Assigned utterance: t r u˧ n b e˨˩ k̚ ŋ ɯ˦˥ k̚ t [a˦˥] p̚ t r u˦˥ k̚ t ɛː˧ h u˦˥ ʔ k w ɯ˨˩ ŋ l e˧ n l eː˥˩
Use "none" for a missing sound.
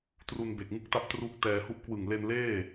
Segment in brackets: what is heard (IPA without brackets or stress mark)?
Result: a˦˥